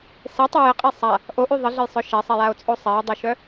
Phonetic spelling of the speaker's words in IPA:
s e tˤ œ j ə qʼ e sˤ a | ʔ o ʔ y ðˤ ə ɮ ə j sˤ œ ʃ ɛ sˤ ɛ j a o̯ t͡sʼ o sˤ ɛ j dˤ o ʃ œ

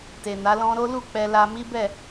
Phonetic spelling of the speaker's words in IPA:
t e˨ n a˨˦ l ɔ̃˦ ɾ o˦ l u˦˨ k͡p ɛ˧ l a˧ m i˦ b ɛ˦˨

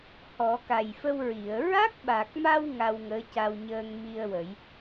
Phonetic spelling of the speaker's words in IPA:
h ɔ˨˩˦ k a˨˩ j f ə˧ w ɹ i˨˩˨ ə̯ ɹ a˦˥ k̚ ɓ a˨˩ k̚ m a˧ w ŋ a˧ w ŋ əː˧˥ c a˧ w ɲ əː˧ ŋ m i˧ ə̯ w ə˨˩˦ j

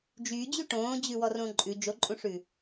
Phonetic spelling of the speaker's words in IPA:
d͡ʒ yː d͡ʑ y ʈ õː d͡ʑ ʉ w ɔ r õ ǃʼ ʉ d͡ʒ o ǃʼ ũ ʂ ʉ

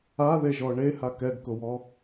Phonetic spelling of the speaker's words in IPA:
a ð e ʒ ɔ ɳ e h a k ɛ ɡ k ʊ w ɔ

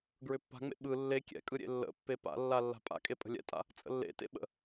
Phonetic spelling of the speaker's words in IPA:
ɡ ɹ ʏ pː a̤ ŋ͡m ḛ ɓ ɯ lː e kʲ ɛ̰ kʼ ɯ ɾʲ ḛ lː ə̰ pː e p a̰ lː a lː a̤ pʼ a̰ kʼ e pʼ ə̤ lʲ ɛ̰ tʼ a̰ | t͡sʼ ə̰ lː ḛ t ḛ ɓ ə̰

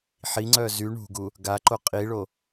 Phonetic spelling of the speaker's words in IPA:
ħ i ŋ͡ǀ œ z y ɳ ṳ ɡ u | ɡ a ǃ o qʼ i ɭ o

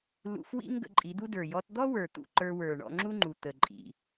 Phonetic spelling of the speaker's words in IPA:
l ṵ˧ f w ḭ˦ ŋ ɡ ə̰˧ ǃʼ i˨˦ d̪ u˦ d ə˞˨ j ɔ˧ t d̪ ɔ˦ w ə˞˨ t̪ ṵ˧ ǃ ə˞˧ w ə˞˨ ɳ ɔ̰˧ ŋ͡ǁ u˦ ŋ͡ǃ u˨ t̪ ə˨ ǃʼ ḭ˨

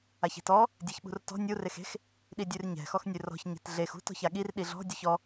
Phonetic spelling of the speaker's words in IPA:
a ç e̤ t ɔ | dʲ e ç ɓ ṳ r t ɔ̤ nʲ u r e x e̤ x | ɗ i dʲ ʉ r ɲ ɛ̤ x ɔ x nʲ ʉ r ɔ̤ ç ɲ e̤ t ɮ e x ṳ t ɔ̤ ç a ɠ i r ɗ i ɮ ɔ̤ dʲ u ç ɔ

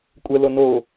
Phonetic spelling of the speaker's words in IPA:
kʷʼ ə l o n o

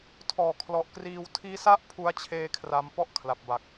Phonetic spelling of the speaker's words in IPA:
tʰ ɔː˨˩ kʰ l ɔ˨˩ ʔ k r iː˧ w tʰ iː˦˥ s a˥˩ ʔ pʰ u˦˥ a̯ t͡ɕʰ eː˦˥ kʰ r a˧ m p ɔ˥˩ ʔ kʰ l a˨˩ p̚ b a˨˩ k̚

